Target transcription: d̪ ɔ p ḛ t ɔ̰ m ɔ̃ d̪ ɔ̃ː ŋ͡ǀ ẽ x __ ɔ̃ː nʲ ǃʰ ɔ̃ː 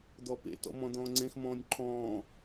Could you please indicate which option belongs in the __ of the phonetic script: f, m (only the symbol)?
m